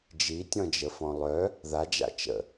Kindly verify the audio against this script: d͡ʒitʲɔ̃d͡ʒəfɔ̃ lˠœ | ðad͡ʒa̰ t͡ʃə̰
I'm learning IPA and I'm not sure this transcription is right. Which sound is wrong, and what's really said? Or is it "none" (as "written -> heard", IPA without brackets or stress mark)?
none